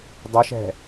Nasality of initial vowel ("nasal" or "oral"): oral